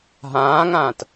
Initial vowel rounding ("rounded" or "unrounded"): unrounded